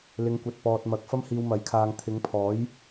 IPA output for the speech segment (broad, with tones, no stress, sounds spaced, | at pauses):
l ɪ˨˧ ŋ kʷ ɐ˨ t̚ p ɔː˨ t̚ m ɐ˨˥ k̚ f ɐ˥ m h iː˧ w m ɐ˨˥ j kʰ aː˧ ŋ t̪ʰ ɪ˨˧ ŋ pʰ ɔː˨˥ j